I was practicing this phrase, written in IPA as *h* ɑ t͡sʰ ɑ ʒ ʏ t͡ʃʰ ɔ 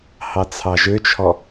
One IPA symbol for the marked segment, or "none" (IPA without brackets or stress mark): h